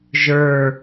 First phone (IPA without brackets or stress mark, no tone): ʒ